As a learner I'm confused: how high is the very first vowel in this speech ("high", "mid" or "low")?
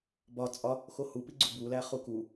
low